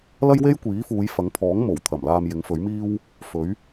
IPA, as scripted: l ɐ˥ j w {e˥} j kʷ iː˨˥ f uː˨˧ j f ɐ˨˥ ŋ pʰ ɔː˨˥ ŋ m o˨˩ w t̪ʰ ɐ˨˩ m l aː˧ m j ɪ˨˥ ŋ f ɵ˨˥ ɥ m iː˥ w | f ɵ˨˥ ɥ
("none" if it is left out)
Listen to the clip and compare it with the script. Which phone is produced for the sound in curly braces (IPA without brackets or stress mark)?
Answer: e˥